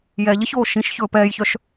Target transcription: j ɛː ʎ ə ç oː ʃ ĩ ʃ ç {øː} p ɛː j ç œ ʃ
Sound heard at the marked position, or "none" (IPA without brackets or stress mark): ɵː